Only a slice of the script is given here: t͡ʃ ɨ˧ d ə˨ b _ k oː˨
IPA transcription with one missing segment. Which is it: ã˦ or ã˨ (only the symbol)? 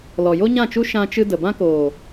ã˦